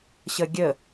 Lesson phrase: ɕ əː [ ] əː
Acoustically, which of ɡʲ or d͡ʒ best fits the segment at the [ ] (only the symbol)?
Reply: ɡʲ